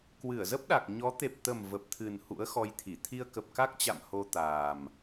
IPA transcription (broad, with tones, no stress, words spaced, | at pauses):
kwɨ˧˩ə̯zə˦˥p̚ɗa˨˩k̚ ɲɔ˨˦ t̪e˨˩p̚t̪ə˨˩m və˨˩p̚t̪ʰɨ˨˩n hṵ˧˥ə̯xɔ˧jt̪ʰi˧˩ t̪ʰi˧ə̯kə˨˩p̚ka˦˥k̚t͡ɕa̰˧˨m ho˧t̪aː˨˩m